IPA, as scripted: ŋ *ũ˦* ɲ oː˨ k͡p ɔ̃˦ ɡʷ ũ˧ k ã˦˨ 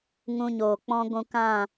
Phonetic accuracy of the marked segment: incorrect: ũ˧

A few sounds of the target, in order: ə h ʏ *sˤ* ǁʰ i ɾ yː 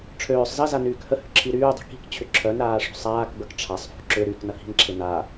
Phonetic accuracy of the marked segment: incorrect: none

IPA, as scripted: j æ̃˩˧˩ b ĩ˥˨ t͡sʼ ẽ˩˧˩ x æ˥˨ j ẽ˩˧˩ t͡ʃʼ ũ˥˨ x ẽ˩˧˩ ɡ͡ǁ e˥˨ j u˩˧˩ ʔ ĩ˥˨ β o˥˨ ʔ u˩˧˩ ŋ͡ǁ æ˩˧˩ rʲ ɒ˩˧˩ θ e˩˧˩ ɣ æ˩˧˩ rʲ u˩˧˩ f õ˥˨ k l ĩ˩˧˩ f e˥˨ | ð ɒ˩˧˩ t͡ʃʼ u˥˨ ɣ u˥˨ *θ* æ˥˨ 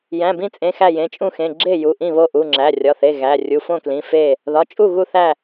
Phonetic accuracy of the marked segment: correct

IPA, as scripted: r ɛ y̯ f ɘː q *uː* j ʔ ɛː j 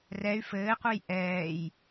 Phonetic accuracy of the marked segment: incorrect: u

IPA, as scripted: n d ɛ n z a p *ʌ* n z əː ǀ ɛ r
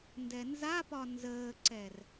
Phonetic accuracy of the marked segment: incorrect: ɒ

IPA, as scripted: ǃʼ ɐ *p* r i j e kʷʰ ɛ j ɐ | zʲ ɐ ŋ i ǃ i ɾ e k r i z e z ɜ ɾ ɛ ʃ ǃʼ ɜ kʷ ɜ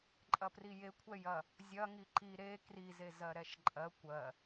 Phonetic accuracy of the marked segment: correct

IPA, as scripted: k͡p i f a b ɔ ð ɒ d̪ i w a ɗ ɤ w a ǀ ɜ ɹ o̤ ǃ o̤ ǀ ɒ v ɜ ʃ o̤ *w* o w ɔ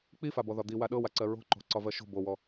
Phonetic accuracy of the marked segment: incorrect: b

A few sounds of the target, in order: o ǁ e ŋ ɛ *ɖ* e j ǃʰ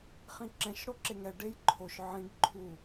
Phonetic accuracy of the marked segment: correct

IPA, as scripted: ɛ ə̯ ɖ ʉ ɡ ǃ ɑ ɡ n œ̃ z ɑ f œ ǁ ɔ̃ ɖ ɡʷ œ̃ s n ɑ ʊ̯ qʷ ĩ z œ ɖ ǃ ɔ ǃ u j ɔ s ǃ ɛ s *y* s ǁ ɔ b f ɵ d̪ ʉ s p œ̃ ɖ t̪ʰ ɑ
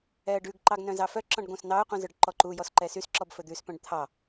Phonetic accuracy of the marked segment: correct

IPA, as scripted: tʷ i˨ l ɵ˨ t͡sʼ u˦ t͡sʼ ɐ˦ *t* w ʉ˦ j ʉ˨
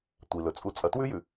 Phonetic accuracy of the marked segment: correct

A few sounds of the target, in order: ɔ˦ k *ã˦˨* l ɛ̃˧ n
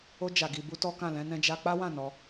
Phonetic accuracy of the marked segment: correct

